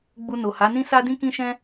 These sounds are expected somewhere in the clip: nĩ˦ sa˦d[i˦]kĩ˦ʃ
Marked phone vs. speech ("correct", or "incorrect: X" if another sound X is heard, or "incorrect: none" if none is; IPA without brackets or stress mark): incorrect: ĩ˦